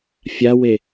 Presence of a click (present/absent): absent